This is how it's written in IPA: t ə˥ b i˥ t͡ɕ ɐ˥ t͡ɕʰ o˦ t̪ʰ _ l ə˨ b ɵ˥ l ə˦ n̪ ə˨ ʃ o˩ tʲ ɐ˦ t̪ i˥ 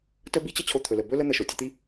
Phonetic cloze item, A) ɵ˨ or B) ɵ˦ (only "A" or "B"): A